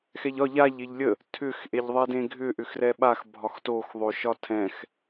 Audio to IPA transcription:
x ɛ ʎ ɒ ʎ a ʎ e ʎ lʲ ə | tʰ ʏ x ʔ e ʎ ðˤ ɛ d ẽ ɡʱ ʏ ʔ ʏ x r ɛ ɓ a x bʱ ɒ x t o x ðˤ o ʃ ɒ tʰ ɛ̃ x

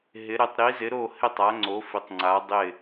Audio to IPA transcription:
ɦ ɪ˨˦ ɾ ɪ˨˦ tˤ ɾ i˨˦ z ɪ˨˦ ɾ o˥˨ h ɪ˥˨ tˤ a˨˦ ŋ͡ǀ o˨˦ f ɪ˨˦ tˤ ŋ͡ǀ a˨˦ dˤ ɪ˥˨

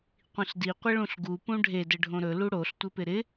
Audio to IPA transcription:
qʷ ĩ ɬ d i qʷ ɪ ɭ ũ ɬ ɡ u p ũ ɖʱ e d ɘ ɖʱ õ ɾ ɵ l u ɽ o ɬ tʷ ɘ p ɪ ɾ ɪ

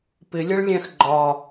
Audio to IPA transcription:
p ɪ lʲ ʌ ɭ lʲ æ̃ x ɡ͡ǃ ɒ

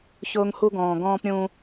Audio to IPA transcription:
ç ʊː˦ ŋ h u˦ ɡ ɔ̃ː˨ ɡ ɔ̃ː˦ p ɾʲ ũ˦

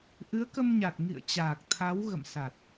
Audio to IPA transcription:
ʔ ɨ˨˦ ə̯ k ə˧ m ɲ a˨˩ t̚ ŋ ḭ˧˨ ə̯ t͡ɕ aː˨˩ k̚ t̪ʰ a˨˦ w ɣ ə̰˧˨ m s a˨˩ t̚

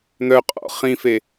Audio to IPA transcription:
n̪ œ qʼ ɔ̰ χ ĩ f e

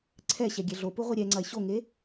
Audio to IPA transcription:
ǀʰ ɛ ɕ ɛ ɡʲ ɛ ɮ o p u ʁʷ i ɾʲ ɛ ŋ͡ǀ ɐ e̯ ɕ o ŋ e

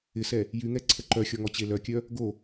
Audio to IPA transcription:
ɪ s ɛ | j y ŋ ɛ ǀʰ ə ǃ œ xʲ ɔ ŋ ɔ t͡ɕ e l œ kʲ œ | ɡ o

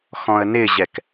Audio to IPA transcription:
x ɔ̃ ə̯ n ɪ ʑ ɛ k

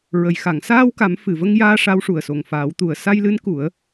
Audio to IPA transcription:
ɹ ə˨˩˨ j x a˨˩˨ ŋ s aː˧ w k a˨˩˦ m f ɨ˨˩ v ə˧ ŋ j aː˧ ʂ a˧˥ w ʂ u˨˩ ə̯ s o˨˩ ŋ f aː˨˩˦ w t̪ u˨˩ ə̯ s a˧ j l ɨ˧˥ n k u˨˩˦ ə̯

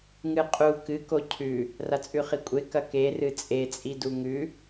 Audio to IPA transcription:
ŋ ɨ qʼ u k ɨ k o cʰ ʉ | r a t͡sʼ ʉ χ i kʷʼ e k ɐ k e r ɨ t͡sʼ e t͡sʼ i d u ŋ ʉ

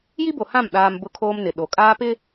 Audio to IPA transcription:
j i˦ b o˨ h ã˦˨ m ɗ aː˦ m b ʊ˦ kʰ oː˦ m n ɪ˨ ɗ o˨ kʼ aː˦ p ɪ˦

